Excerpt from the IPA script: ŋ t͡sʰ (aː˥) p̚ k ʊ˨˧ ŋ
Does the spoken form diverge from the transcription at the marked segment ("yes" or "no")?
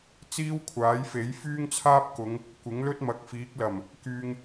no